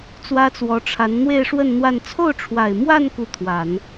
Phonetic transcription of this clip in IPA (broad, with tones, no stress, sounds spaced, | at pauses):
t͡s w ä˥ t͡s w ɔ˧˥ ʈ͡ʂʰ a˧˥ n n̪ w e˥˧ ɪ̯ ʂ w ə˥˧ n n̪ w a˥˧ n t͡sʰ o˥˩ ʊ̯ ʈ͡ʂʰ w a˨˩ ɪ̯ m w a˥˧ n k u˥˩ t̪ʰ w a˨˩˦ n